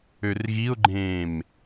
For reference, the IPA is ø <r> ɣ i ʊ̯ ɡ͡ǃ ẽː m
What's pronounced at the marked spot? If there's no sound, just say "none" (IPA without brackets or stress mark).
r